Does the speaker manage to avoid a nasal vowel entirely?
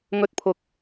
yes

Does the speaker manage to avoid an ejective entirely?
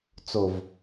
yes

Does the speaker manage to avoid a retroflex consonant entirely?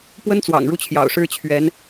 no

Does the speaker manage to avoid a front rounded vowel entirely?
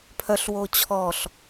no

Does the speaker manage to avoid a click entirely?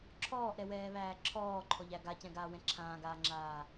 no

